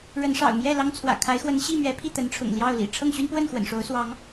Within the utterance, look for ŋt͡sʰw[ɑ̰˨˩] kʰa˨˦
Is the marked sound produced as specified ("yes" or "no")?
no